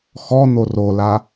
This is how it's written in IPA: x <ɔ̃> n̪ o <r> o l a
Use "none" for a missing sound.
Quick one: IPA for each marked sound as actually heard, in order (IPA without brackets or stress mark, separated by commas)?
ɔ, r